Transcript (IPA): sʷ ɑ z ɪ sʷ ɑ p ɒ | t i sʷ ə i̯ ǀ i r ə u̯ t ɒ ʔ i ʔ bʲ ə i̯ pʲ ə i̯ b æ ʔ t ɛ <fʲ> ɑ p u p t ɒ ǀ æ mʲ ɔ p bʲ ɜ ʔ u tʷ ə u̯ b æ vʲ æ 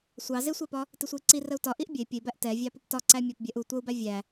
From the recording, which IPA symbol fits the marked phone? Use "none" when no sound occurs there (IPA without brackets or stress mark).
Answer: vʲ